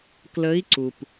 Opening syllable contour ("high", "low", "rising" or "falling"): rising